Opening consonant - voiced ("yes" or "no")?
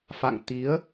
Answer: no